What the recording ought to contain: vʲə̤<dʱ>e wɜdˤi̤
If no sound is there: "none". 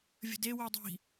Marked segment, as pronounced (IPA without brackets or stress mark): d